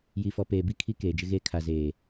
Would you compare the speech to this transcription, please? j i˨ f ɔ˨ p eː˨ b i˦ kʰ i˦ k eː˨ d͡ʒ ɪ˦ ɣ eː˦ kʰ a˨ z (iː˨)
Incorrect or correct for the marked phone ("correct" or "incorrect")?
incorrect